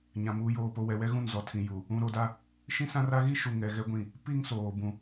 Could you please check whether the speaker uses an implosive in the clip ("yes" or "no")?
no